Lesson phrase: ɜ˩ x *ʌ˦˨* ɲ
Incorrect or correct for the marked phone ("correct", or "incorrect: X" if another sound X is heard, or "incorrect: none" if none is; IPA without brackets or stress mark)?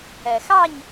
incorrect: ɑ˦˨